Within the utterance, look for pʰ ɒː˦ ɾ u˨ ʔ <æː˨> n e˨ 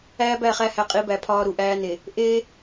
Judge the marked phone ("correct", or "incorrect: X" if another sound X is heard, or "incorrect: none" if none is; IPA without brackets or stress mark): incorrect: æː˦